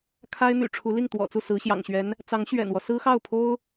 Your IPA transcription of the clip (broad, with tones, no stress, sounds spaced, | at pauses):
kʰ a˥ ɪ̯ n̪ y̰˨˩ ʈ͡ʂʰ u˧˥ l i˥˩ ŋ t̪ w ɔ̰˨˩ t͡s u˥˩ s ɹ̩˧˥ ɕ j ɑ̰˨˩ ŋ ɕ ɥ ɛ˧˥ n | t͡s ɑ˧˥ ŋ ɕ ɥ ɛ̰˨˩ n w ɔ˦ s ɹ̩˥ x ɑ˥˩ ʊ̯ pʰ o˥ ʊ̯